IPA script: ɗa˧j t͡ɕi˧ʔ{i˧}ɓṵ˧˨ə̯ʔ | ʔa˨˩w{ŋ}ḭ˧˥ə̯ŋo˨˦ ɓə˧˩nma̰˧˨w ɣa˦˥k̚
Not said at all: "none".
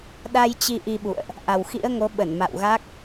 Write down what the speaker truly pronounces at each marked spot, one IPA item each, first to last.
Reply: i˧, x

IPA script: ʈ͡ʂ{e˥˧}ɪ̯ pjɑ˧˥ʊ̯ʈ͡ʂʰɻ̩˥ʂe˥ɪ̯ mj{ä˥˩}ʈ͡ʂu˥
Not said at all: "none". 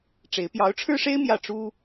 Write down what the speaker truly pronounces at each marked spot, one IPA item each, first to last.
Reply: e˧˥, ä˥˩

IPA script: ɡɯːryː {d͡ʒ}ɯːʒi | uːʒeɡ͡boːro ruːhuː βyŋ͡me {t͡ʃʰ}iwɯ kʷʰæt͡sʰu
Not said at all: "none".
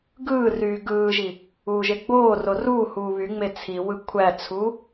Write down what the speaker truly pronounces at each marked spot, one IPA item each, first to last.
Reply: ɡ, t͡sʰ

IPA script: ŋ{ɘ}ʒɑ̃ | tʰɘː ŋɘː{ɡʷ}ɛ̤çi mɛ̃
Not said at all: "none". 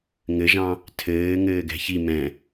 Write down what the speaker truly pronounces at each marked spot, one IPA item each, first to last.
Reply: ɘ, ɡ

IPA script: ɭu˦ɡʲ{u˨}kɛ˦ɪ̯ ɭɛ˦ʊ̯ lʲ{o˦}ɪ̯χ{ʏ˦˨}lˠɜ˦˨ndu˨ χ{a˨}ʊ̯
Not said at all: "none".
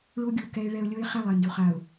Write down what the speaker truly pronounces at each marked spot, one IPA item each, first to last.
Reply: u˨, o˦, ɛ˦˨, a˨

